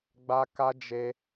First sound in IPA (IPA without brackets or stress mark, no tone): ɡ͡b